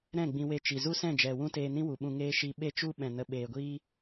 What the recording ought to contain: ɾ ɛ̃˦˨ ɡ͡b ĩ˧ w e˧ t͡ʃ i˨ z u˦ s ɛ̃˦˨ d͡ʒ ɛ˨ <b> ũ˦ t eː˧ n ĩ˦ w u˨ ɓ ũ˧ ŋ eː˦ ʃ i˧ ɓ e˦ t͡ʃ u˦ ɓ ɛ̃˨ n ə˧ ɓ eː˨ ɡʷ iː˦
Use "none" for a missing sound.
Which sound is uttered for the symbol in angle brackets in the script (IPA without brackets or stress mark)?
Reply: w